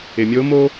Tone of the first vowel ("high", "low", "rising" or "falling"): low